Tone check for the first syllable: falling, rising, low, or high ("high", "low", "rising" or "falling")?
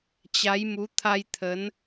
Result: rising